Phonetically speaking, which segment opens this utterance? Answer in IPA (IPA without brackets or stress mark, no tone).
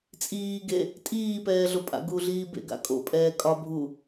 t͡sʼ